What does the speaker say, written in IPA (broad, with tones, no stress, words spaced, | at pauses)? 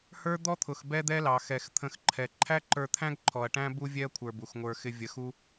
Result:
hə˞˦ d̪ɔ˦t̪ʰʊ˨x bɛ˦d̪ɛ˦lɑ˨ xɛ˨xt̪ʰə̃˧xǃʰɛ˨ ǃʰæ˦ǃə˞˧t̪ʰæ̃˦ɡ ǃʰɔ˨ɐ̯ʈæ̃˦ bu˦vʲɛ˦ɐ̯ kʷʰə˞˧bu˨xŋʷə˞˧ xɪ˧vʲə˨˦xu˦